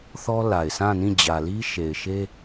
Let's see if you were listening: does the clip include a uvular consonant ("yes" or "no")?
no